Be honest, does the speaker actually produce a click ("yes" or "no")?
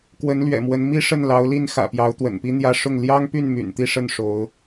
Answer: no